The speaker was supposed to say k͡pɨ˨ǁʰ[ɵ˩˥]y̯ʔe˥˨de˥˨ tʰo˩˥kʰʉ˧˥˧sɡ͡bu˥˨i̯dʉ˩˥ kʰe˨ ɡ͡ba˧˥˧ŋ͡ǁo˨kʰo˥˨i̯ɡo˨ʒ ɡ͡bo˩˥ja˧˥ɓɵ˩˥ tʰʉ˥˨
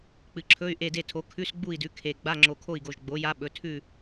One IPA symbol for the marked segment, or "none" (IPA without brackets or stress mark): ɵ˧˥˧